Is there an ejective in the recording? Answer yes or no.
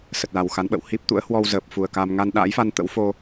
no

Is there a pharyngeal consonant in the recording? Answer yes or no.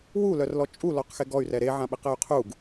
yes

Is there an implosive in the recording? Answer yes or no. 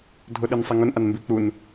yes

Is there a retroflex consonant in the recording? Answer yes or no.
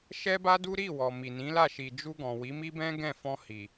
no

